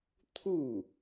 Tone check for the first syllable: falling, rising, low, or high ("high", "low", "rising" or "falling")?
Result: falling